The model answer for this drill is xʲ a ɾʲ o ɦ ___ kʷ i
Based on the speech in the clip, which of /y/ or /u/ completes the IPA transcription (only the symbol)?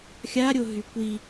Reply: y